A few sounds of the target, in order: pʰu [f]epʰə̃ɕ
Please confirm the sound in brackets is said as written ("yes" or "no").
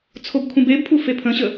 yes